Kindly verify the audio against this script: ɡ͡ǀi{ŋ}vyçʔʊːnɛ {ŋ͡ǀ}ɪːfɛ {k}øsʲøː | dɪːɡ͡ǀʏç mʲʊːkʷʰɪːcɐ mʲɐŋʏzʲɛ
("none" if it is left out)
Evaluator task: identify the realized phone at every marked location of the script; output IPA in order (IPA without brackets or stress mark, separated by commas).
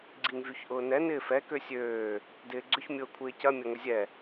ŋ, n, k